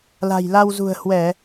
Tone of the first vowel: low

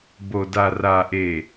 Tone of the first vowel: low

